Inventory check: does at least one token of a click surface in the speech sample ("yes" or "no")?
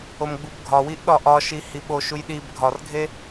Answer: no